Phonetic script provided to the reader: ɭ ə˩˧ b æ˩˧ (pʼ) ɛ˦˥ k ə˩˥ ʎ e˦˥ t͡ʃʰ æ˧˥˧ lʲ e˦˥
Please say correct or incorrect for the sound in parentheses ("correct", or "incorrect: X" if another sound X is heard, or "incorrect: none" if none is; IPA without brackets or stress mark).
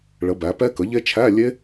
incorrect: p